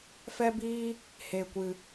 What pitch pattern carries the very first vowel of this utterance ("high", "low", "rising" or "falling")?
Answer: high